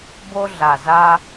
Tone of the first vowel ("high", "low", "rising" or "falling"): high